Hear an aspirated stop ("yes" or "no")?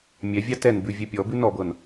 no